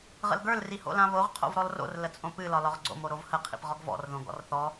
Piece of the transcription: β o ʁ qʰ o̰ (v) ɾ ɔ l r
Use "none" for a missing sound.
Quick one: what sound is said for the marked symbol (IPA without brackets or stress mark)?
v